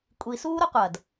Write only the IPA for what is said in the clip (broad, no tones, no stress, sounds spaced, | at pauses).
kʷʼ i s uː ɾ o qʷ ɐ d